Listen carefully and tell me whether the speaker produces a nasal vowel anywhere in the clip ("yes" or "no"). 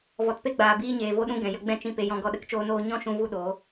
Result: yes